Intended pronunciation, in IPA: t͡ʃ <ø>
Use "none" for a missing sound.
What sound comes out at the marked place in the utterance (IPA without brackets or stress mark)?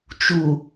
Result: u